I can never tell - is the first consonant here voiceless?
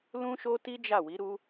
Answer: no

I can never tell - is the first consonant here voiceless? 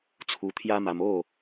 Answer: yes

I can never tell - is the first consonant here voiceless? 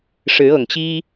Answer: yes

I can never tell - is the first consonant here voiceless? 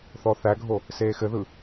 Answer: yes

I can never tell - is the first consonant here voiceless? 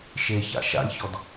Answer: yes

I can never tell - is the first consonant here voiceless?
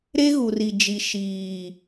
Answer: no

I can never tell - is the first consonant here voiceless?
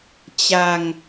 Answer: yes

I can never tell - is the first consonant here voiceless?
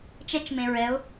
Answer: yes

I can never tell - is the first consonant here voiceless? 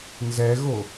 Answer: no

